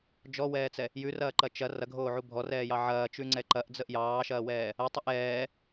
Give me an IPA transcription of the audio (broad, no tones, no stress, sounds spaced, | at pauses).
d͡ʒ ɔ w ɛː t͡s ɛ | j ʉ r ɐː ǃ ɐ t͡ʃ ɐ r ɐ ɡʱ oː ʕ u bʱ ɔ r ɛː j ɑ ʕ ɐː t͡ʃ ʉ ŋ͡ǀ ɛ ǃ ɐ ʔ d͡z ə ʔ j ɑː ʃ ɐː w ɛː | ɐ tˤ ə ʔ ɛː